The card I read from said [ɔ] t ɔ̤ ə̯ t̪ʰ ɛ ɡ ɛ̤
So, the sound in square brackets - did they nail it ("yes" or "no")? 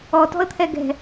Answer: yes